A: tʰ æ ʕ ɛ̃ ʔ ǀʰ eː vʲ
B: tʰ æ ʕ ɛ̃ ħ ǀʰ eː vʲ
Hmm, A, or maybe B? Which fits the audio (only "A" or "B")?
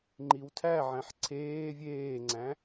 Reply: B